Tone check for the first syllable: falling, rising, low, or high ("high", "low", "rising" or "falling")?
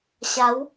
rising